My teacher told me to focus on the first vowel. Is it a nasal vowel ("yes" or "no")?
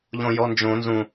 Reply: yes